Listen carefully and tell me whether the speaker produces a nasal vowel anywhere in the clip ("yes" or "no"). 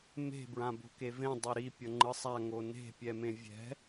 yes